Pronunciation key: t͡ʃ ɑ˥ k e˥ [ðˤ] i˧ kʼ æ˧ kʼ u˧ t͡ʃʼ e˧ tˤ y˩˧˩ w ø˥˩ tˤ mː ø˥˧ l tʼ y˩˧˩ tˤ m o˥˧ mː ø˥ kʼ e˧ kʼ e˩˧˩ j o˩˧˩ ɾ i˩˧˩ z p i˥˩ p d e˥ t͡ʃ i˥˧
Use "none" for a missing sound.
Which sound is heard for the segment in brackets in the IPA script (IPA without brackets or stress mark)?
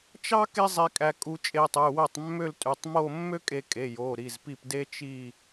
zˤ